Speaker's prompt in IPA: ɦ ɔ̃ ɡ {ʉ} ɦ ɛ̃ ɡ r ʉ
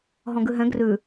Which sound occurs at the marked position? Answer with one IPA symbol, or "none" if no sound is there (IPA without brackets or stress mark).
ʉ